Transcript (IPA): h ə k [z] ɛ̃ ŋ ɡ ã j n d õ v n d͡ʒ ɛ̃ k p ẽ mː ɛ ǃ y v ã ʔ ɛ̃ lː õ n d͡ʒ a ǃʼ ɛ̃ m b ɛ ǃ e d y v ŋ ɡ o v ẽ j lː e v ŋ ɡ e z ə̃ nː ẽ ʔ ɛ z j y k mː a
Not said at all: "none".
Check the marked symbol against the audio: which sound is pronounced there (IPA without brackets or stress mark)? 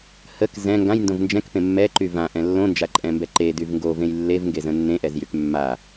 z